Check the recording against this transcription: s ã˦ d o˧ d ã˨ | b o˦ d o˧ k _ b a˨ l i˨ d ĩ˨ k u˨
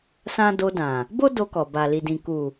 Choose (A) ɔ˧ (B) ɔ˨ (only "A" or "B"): B